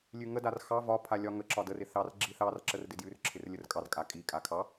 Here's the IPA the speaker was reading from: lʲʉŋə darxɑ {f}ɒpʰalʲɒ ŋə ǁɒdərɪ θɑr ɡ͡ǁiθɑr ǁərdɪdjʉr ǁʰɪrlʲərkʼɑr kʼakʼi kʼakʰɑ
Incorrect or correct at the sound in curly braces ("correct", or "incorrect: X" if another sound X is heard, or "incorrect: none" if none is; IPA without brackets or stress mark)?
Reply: incorrect: v